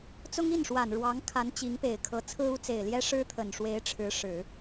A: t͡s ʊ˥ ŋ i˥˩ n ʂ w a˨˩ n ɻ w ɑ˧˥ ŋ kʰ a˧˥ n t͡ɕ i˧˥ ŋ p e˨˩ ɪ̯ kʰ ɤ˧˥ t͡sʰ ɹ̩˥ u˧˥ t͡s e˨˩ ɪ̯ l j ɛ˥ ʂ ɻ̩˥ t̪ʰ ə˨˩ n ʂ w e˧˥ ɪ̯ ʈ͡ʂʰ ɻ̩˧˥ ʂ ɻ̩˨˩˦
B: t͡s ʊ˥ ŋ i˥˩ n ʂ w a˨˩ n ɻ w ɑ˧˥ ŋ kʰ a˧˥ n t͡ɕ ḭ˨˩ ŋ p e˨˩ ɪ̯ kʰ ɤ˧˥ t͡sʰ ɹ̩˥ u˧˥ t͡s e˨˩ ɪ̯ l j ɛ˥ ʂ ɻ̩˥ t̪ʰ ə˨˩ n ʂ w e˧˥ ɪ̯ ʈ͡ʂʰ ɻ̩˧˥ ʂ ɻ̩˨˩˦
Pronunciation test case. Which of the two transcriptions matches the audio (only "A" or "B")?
A